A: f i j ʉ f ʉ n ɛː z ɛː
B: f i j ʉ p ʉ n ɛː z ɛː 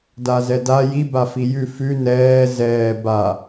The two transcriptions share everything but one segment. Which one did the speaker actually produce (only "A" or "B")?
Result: A